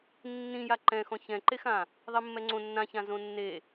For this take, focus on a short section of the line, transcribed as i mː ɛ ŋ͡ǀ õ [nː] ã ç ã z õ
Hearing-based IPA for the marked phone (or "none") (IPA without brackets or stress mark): nː